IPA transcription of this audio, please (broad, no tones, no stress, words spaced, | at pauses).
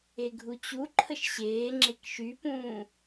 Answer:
eɡʱut͡ɕu ǃʰəʃɕeː ŋ͡ǁekʃypũː